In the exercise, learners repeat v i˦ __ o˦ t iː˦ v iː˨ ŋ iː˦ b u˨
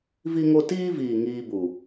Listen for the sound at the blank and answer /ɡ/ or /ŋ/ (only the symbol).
ŋ